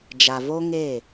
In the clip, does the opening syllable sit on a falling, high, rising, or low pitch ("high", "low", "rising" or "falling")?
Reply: low